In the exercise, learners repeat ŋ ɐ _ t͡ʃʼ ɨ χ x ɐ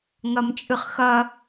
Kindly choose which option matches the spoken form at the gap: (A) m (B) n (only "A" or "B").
A